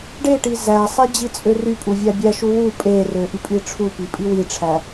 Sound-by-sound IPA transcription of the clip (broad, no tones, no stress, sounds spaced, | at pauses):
ɖ e ʈ i z æ sˤ e d͡ʑ i t͡sʼ ø r y pʼ u vʲ æ bʲ æ ʃ u w u pʼ e r ø ʔ y pʼ i ʈ͡ʂʰ u p i pʼ i w i ʈ͡ʂʰ æ